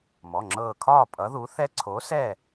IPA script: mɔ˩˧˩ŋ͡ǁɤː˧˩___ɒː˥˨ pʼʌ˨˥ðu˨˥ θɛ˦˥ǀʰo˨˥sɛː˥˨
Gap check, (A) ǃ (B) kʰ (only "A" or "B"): B